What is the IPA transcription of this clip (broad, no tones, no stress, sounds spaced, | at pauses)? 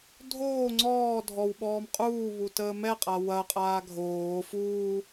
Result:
dʱ oː ŋ͡ǀ ɔː dʱ ɔ w ɓ ɔː m qʼ uː β u t əː m ɛ qʼ a w ɐ qʼ aː ɡʱ oː f uː